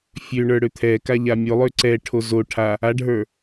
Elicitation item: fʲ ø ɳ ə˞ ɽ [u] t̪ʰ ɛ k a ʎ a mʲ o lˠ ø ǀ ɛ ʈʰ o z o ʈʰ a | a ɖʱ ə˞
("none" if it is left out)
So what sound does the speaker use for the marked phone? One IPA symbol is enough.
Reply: ø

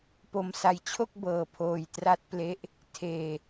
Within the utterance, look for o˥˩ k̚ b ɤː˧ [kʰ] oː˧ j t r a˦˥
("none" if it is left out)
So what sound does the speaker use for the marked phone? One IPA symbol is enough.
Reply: pʰ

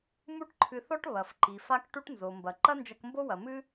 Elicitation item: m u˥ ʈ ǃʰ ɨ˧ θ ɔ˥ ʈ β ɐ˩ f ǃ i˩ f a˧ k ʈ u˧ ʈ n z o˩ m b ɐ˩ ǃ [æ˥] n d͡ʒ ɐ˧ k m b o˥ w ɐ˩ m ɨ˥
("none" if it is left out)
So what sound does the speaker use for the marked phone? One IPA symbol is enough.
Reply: ɐ˥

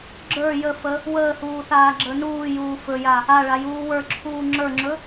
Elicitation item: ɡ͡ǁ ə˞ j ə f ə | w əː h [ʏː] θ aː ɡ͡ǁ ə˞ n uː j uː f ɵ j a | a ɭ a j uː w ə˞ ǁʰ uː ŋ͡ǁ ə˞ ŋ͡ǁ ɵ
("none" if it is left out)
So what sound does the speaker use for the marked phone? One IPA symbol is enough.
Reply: uː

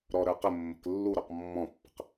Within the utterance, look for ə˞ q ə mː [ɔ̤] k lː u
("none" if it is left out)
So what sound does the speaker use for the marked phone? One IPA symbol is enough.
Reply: ə̤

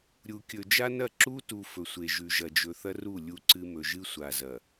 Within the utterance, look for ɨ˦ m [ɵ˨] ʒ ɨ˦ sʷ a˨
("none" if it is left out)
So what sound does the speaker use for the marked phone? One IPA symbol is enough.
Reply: ɵ˨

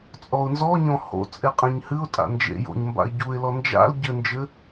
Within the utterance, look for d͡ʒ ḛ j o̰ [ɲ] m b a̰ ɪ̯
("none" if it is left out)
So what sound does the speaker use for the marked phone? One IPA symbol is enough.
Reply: ɲ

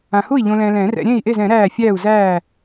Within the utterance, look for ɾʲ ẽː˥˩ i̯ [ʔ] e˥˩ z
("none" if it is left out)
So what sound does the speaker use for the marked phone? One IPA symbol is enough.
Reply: ʔ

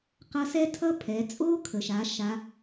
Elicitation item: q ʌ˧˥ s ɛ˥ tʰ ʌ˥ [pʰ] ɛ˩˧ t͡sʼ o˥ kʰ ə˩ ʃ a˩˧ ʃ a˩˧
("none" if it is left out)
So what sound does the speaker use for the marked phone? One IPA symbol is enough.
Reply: pʰ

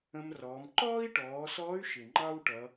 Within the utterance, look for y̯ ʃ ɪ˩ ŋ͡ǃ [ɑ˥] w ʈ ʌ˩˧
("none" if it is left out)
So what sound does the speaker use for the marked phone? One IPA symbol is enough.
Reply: ɑ˥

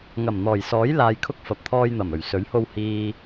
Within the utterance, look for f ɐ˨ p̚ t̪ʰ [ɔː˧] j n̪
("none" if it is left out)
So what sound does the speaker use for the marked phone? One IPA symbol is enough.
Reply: ɔː˧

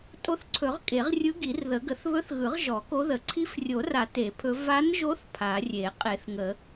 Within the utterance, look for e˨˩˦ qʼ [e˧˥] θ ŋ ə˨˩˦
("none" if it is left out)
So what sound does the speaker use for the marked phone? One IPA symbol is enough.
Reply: e˨˩˦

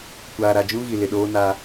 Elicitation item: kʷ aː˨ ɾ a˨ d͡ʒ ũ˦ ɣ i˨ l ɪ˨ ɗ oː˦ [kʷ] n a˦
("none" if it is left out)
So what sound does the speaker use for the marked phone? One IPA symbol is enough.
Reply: none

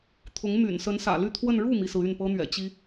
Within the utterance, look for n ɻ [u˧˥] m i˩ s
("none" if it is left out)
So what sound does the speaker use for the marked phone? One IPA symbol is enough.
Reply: u˥˩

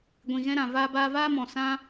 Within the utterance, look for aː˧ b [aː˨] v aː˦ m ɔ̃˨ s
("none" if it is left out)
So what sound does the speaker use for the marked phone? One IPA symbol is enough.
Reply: aː˧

